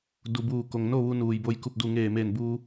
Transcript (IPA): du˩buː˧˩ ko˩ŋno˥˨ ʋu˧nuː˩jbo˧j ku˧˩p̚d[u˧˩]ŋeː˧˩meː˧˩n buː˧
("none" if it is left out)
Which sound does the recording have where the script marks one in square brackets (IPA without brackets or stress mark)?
u˧˩